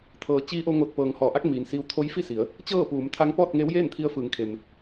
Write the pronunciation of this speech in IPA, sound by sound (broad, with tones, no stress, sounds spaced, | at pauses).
t̪ʰ ɤː˩ t͡ɕ iː˧˥ ʔ o˧ ŋ o˧˩ t̚ p ɤː˩ ŋ h ɔː˩˧ ʔ a˧˥ k̚ m iː˩ n s iː˧ w t̪ʰ o˧˥ j f i˥˨ s i˩˧ ə̯ | t͡ɕ ɤː˥˨ p uː˩˧ m t̪ʰ a˧˥ ŋ p ɔː˥˨ t̚ ŋ eː˧˥ w j eː˥˨ n t̪ʰ i˧ ə̯ f ɯː˩˧ ŋ kʰ e˩ m